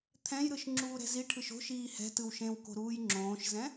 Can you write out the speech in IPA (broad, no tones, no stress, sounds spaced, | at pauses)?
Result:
t̪ʰ ɛ̃ j ɾ ɯ ʃ ŋ͡ǁ uː ɾ ɛ̤ z i ʈʰ ɯ ʃ o̤ ʃ iː h ɛ̤ t ɯ w ʃ ẽ w k o̤ ɾ uː j ŋ͡ǁ õː ʃ z ɛ̃